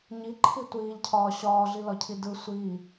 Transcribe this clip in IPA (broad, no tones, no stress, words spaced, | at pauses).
ɲiǃʰi tʷiːʎcʰɒː ɕɒːɮilɒcʰi dɯ sʷiː